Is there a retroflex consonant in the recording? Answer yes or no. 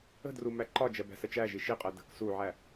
no